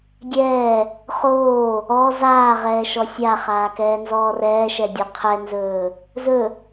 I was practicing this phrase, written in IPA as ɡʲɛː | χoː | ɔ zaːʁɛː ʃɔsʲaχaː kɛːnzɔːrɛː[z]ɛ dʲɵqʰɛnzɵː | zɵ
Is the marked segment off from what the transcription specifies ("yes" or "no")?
yes